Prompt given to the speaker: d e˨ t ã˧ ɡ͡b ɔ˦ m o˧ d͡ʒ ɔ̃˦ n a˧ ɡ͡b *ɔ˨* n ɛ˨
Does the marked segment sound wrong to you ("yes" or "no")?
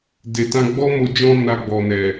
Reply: no